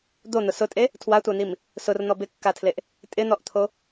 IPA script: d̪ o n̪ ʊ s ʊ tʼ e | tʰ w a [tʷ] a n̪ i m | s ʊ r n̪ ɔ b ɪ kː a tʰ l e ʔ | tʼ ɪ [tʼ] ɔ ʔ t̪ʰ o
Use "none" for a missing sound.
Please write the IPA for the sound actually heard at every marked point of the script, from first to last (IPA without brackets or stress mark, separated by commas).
tʷ, n̪